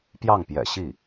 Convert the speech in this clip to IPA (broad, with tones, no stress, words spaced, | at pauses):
pjɑ˥˩ŋpjɛ̰˨˩ ɕi˥˩